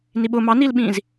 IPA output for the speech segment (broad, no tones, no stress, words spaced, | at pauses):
niɓʊ mɑnilɓĩːz